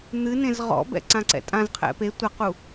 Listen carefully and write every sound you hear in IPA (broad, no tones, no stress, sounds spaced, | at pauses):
n̪ ɨ n ẽ z ʁ ɔ̰ b ɛ̰ ǀ ã ǀ ɛ̰ tʼ ã z qʰ ɛ̰ p e tʷ ɐ q u